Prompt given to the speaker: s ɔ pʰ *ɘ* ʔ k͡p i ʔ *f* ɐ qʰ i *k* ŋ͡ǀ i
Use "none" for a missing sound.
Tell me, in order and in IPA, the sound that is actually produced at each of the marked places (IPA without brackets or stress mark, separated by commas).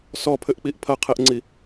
ɘ, pʰ, ʔ